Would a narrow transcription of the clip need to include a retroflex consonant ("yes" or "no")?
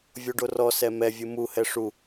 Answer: yes